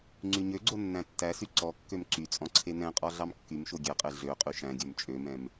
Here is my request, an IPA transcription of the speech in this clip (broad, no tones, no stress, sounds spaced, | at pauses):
ŋ͡ǀ y ɲ ø ɡ͡ǀ o nː æ̃ tː æ s y ǀ ɔ kː ø m ǀ y t͡sʼ ɔ̃ ǀʰ e n ɛ̃ qʼ ɔ ɮ ɑ m kː y m ʃ o ɡʲ ɛ qʼ e ɮ ø qʼ y ʃ æ̃ ɡʲ œ m t͡ʃʼ ø m ɛ̃ m